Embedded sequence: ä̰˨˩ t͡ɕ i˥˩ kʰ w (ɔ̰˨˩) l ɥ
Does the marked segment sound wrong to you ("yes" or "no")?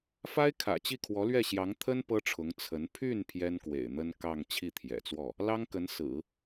yes